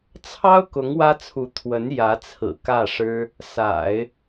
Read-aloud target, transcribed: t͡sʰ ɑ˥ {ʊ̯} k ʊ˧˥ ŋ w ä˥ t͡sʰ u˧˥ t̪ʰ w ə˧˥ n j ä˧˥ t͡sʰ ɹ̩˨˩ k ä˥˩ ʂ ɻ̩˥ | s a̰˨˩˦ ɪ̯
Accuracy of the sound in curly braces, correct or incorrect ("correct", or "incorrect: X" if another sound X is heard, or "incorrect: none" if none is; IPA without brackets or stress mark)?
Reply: correct